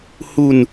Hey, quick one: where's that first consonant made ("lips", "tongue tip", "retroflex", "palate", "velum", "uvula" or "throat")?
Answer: throat